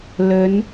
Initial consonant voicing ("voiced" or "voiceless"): voiced